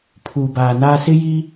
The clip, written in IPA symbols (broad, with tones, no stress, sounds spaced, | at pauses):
pʰ uː˨ b aː˨ n aː˦ s ɪ˦ j iː˦